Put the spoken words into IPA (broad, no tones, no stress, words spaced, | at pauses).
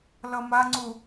lʌmaŋ͡ǀu